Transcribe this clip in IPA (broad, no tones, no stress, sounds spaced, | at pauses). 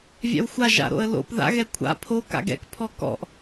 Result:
vʲ ɑ̰ w xʷ a ʒ a̰ ɾ o̰ ə̯ l o̰ p ð a̰ ɣ ɛ kʷʰ a̰ pʰ o k a̰ ɡ ɛ̰ k pʰ ɔ k ɔ̰ ʔ